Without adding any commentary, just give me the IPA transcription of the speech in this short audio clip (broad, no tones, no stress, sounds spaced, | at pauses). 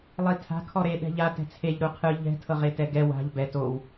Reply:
lˠ i tʰ a̤ kʰ ɔ ɾ e ɗ ɛ̤ ʎ a t ɛ̤ t͡sʰ e ʎ ɾ u qʰ ɯ ʎ ɛ̤ tʰ ɤ ʁ e t ɛ ɡ ɛ w a̤ ʎ b ɛ t o w